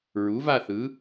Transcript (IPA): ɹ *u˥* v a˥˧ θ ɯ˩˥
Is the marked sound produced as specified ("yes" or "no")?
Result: no